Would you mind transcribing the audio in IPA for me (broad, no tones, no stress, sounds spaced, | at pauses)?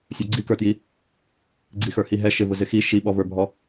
sʲ ə˞ ɡ͡ǀ i k ə˞ t j i | ɡ͡ǀ i x ə˞ h i ɦ ɛ ʃ ɪ v ʊ z ɪ x i ʃ i ɓ ɔ v ə˞ bʱ ɔ